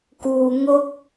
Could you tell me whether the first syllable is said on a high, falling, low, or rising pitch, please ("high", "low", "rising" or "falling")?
low